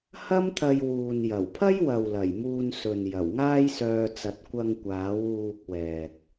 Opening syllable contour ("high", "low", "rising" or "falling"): high